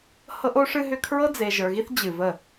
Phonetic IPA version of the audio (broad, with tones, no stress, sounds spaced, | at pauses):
h ɤ˦ ʔ o˦ ʂ ɨ˦ ɦ ʏ˦ kʰ ɹ ɤ˦ d͡z e˨ ʒ ə˞˨ ɣ i˦ θ d͡ʑ ɨ˨ v ə˦˨